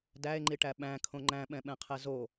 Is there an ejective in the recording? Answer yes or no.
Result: no